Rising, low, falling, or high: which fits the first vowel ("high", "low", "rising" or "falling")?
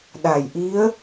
low